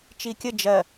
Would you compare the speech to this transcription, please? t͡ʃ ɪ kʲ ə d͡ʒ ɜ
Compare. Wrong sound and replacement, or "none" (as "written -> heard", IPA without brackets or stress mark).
ɪ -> i